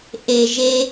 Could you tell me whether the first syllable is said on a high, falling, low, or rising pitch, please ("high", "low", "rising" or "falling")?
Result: low